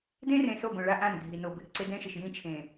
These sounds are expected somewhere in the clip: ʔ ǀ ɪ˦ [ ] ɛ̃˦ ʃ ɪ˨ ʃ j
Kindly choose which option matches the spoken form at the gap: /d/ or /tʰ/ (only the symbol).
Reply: d